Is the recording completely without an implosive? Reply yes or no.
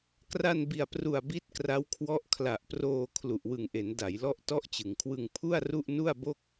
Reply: yes